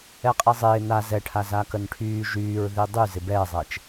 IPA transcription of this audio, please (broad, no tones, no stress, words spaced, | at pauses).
ɛqʼezˤɪː na zɛʈʰa zakənʈʰyː ʒyːɹ ðidˤy zɪbɛːzˤɛt͡ʃ